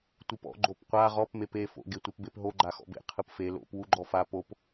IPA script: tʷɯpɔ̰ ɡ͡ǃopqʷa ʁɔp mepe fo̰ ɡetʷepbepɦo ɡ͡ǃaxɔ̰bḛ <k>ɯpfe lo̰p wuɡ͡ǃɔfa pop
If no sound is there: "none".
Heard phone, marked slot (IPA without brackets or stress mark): qʰ